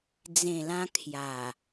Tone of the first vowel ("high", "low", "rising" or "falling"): low